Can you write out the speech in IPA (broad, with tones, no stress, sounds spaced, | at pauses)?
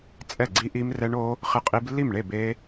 t͡sʼ ɛ˥˩ ɡ͡ǀ i˦˥ ʔ i˦˥ m r ɛ˦˥ ɳ o˦˥ | χ ɪ˦˥ qʼ i˦˥ b lː i˥˩ m ɳ e˥˩ b e˦˥